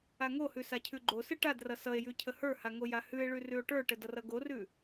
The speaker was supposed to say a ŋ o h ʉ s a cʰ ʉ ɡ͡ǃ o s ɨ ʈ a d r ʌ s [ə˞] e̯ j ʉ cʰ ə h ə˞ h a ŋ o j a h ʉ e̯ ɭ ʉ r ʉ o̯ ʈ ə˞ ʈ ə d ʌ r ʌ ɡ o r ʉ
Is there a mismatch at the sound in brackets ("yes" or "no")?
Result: yes